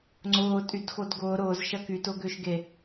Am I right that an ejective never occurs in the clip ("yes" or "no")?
no